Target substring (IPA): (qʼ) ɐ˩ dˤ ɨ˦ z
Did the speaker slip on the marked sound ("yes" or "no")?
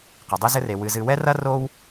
yes